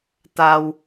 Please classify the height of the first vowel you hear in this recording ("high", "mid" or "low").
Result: low